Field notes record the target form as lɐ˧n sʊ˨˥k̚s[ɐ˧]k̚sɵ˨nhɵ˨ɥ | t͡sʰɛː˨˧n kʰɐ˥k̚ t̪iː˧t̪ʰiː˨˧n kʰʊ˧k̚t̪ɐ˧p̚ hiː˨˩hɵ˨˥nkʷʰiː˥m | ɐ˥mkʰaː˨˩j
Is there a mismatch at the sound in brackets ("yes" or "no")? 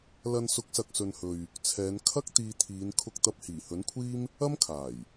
yes